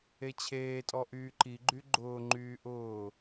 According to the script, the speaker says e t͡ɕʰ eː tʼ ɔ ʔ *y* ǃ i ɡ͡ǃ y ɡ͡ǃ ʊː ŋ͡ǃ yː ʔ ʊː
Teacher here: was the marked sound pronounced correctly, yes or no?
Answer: no